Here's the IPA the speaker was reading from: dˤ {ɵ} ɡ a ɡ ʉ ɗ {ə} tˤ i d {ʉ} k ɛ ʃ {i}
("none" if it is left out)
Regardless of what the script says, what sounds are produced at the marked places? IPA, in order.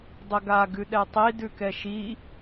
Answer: ə, ɛ, ʉ, i

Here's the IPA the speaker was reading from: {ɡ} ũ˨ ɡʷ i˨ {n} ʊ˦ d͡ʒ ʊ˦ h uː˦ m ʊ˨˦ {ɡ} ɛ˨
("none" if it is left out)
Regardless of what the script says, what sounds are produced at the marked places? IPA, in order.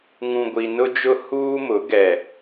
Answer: ŋ, n, ɡ

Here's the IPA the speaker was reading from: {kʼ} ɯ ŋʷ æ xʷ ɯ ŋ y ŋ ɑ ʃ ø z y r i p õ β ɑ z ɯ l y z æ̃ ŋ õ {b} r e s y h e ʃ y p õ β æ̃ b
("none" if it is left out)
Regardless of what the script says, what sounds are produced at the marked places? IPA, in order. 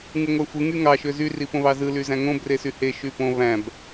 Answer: ŋ, b

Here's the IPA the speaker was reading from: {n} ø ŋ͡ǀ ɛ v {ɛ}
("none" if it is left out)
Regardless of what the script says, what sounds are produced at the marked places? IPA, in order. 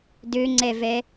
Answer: d, ɛ

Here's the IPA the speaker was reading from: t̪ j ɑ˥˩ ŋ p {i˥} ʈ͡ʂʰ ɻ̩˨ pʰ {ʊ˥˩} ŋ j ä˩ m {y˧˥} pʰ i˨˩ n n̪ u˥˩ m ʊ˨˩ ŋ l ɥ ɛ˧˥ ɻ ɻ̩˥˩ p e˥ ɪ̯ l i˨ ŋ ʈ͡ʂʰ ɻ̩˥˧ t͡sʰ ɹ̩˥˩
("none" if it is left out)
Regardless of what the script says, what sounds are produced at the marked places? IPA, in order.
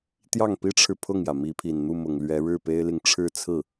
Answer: i˥, ʊ˥˩, i˧˥

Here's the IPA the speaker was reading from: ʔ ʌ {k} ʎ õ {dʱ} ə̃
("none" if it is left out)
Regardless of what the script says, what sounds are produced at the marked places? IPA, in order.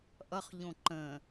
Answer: χ, ǃ

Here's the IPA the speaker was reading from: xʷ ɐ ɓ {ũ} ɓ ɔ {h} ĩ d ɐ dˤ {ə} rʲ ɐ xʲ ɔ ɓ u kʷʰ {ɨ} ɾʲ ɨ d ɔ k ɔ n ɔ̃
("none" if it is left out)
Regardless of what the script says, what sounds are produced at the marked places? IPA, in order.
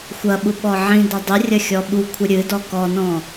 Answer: u, ʕ, ɨ, ɨ

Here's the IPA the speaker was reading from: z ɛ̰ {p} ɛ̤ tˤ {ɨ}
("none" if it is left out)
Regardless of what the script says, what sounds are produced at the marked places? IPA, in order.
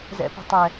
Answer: p, ɛ

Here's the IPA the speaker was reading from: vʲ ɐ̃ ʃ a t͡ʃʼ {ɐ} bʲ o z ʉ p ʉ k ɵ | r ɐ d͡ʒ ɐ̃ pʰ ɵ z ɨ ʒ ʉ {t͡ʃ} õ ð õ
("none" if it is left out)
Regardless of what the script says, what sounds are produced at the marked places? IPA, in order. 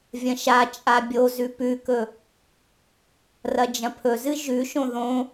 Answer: a, ʃ

